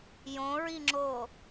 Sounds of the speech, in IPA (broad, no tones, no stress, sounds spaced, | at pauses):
j õ ɹ i ŋ͡ǁ o